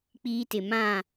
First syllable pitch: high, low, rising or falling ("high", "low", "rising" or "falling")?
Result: high